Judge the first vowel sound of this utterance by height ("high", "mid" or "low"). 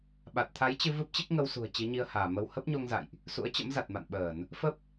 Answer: low